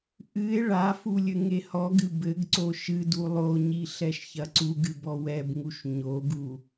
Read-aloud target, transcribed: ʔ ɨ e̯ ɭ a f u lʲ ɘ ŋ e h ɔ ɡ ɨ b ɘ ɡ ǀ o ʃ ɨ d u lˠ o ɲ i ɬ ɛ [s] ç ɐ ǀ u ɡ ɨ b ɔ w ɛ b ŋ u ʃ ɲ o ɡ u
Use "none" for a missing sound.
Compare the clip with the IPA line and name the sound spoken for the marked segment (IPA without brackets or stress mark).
ʃ